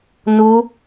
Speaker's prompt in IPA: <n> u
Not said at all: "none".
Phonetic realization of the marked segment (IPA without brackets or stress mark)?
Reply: n